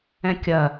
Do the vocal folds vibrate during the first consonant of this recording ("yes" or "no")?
no